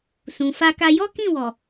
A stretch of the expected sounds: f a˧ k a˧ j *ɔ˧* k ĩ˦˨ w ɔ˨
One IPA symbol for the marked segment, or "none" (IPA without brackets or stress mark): ɔ˦